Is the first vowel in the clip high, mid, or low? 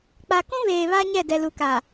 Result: low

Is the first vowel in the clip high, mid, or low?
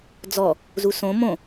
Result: mid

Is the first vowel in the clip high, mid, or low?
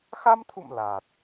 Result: low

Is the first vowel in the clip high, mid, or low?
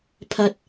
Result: low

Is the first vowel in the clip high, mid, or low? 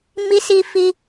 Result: high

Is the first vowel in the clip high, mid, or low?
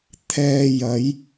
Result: mid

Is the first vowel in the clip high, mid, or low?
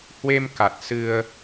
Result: mid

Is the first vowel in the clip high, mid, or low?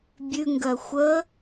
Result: high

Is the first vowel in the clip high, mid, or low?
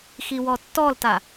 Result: high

